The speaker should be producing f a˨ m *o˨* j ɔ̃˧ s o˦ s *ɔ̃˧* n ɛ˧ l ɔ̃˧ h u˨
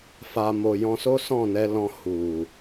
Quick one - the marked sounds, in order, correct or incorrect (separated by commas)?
correct, incorrect